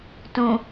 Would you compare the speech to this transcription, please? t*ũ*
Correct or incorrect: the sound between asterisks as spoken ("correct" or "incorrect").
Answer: correct